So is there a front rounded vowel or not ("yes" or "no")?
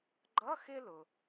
no